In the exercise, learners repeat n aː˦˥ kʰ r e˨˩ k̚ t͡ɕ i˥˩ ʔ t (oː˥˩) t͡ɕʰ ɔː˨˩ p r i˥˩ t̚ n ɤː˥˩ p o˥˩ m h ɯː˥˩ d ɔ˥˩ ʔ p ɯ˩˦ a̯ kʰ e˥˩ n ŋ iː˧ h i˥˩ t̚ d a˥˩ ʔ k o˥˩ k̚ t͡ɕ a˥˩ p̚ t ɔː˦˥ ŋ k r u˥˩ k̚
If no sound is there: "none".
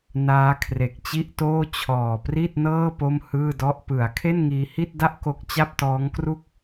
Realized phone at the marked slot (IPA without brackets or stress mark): oː˥˩